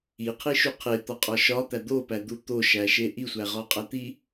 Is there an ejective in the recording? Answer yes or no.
yes